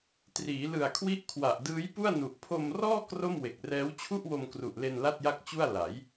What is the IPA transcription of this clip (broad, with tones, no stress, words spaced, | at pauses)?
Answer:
triː˩˦lɯ˨˩a̯kʰwi˦˥ʔkʰwa˨˩ʔ dɯː˦˥j pu˥˩a̯nu˨˩ʔ pʰo˧mrɔː˥˩ kro˥˩mwe˨˩k̚rɛː˦˥w t͡ɕʰu˥˩ʔwo˧mkru˨˩ʔle˧n la˥˩t̚ja˥˩k̚t͡ɕu˥˩a̯ la˩˦j